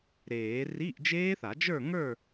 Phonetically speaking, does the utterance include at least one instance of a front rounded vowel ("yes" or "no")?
no